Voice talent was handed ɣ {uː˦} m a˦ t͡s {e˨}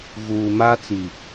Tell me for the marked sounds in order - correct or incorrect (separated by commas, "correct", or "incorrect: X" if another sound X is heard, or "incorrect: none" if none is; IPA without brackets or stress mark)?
incorrect: uː˨, incorrect: i˨